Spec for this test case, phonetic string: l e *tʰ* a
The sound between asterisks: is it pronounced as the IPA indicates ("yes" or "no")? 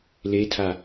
yes